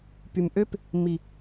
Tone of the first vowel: low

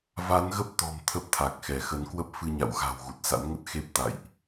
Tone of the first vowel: rising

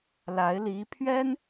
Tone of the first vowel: rising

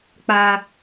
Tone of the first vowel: high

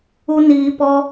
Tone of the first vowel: high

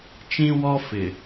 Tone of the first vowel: high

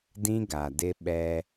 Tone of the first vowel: high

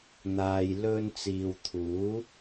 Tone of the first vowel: low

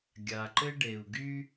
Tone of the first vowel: low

